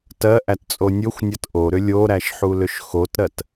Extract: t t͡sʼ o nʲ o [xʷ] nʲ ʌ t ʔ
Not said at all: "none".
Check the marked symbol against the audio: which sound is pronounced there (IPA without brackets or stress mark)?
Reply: xʷ